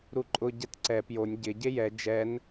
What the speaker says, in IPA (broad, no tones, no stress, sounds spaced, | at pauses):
ɾ u ǃʼ ʊ ɟ ɛ t ǀ ɛ p j o nʲ ɟ ɪ ɟ e j ɛ d͡ʒ ɛ n